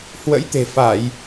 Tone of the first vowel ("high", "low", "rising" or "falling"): rising